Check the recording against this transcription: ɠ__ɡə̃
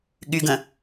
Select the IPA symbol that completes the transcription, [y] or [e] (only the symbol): y